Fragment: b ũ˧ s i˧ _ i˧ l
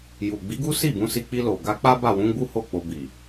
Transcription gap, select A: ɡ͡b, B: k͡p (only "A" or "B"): B